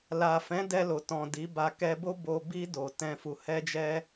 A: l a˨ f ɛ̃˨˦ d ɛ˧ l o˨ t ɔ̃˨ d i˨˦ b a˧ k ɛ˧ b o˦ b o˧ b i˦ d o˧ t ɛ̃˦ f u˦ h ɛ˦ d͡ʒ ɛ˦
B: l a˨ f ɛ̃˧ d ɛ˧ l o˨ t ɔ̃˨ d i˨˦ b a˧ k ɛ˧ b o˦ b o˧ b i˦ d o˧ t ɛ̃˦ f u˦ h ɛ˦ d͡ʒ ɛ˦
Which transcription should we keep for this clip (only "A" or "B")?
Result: A